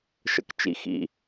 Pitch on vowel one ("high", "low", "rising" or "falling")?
low